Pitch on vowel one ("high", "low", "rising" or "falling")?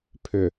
low